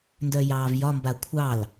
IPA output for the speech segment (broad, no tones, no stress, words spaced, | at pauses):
ndœjɑːvjɒ mbakʷʰɑl